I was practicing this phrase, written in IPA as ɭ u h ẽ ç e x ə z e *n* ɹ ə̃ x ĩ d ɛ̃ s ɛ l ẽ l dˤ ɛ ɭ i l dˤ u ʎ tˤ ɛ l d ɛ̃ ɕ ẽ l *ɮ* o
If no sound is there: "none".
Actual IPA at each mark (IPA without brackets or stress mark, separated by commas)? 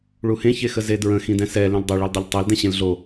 d, ɮ